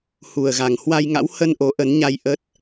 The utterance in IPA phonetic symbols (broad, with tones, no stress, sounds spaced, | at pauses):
h u˨˩ ə̯ ɣ a˨˩ ŋ h w a˧ j ŋ a̰˧˥ w h ə˧ n ʔ o˨˦ ʔ ə˨˦ n ɲ a˧ j ʔ ə˦˥ t̚